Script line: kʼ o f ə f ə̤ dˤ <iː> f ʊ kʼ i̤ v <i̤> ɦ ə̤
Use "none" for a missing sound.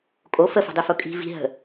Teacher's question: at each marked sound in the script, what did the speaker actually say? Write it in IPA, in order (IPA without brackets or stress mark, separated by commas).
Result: i, i̤